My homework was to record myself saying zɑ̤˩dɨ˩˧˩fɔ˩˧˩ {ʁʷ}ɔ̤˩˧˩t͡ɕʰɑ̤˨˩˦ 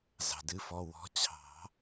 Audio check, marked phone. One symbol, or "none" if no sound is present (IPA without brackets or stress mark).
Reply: w